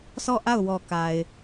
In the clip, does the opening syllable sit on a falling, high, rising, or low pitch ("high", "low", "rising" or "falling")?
falling